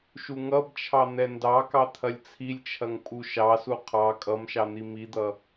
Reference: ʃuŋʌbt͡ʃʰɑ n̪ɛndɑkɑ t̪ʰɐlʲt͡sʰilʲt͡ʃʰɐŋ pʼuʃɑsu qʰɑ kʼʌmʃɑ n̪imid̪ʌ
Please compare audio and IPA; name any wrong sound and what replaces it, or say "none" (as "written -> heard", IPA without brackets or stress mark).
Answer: none